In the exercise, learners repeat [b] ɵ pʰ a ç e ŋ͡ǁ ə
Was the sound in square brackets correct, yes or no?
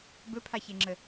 yes